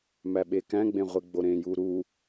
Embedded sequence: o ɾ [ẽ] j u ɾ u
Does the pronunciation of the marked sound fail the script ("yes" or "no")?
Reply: no